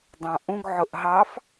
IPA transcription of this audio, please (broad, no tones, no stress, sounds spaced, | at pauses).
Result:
dˤ ɑ̃ ʔ ũ ɡ ʕ ʊ ʔ ɦ ɑ f